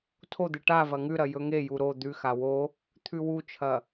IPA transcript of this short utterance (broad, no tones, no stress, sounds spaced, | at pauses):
tʰ o d̪ ɨ ʈ a v ɐ ŋ ʉ ɾ ɐ j ɵ ŋ e j u ɾ o d̪ ʉ x a w o | t̪ʰ ʉ w u t͡ʃʰ ɐ